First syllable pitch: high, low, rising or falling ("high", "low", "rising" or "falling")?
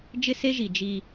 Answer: high